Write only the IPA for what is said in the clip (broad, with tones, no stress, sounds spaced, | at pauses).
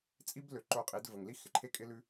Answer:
t͡sʼ i˦ b l ø˨ ǃ o˧ qʼ i˨˦ d v ə˨ ŋ l i˦ x ɪ˨ ǃʰ e˦ kʼ ɪ˦ l ʉ˦